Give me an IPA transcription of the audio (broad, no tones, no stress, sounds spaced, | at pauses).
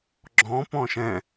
ɡ͡ǁ ɔ̃ p ɔ̃ ʃ ɛ̃